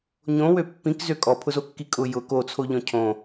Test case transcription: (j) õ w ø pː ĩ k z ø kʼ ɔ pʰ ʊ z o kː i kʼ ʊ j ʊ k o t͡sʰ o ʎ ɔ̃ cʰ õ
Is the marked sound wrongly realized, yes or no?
yes